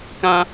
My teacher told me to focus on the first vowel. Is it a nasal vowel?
yes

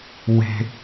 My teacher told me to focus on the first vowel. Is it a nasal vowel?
no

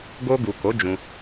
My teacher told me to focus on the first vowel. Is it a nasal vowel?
no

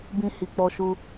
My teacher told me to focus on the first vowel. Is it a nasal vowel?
yes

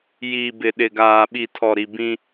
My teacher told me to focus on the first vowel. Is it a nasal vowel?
no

